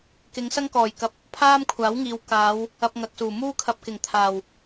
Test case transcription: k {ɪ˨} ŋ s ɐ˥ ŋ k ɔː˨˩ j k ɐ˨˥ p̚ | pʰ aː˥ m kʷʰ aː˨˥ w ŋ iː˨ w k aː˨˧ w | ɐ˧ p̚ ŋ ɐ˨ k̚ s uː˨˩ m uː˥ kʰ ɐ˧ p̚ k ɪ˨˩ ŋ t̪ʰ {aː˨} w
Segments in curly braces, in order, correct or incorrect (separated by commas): incorrect, incorrect